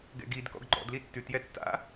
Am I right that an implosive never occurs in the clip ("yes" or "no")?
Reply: yes